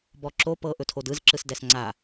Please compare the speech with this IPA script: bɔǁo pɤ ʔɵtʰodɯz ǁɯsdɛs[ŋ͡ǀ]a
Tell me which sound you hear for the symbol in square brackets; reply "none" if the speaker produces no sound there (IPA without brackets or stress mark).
ŋ͡ǀ